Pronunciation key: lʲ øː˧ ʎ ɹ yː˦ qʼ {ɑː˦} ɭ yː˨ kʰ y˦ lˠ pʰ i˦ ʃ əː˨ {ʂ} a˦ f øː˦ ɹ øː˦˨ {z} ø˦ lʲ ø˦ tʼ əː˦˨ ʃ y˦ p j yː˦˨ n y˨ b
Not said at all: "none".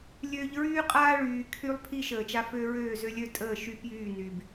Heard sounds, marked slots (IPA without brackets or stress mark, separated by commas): aː˦, t͡ʃ, z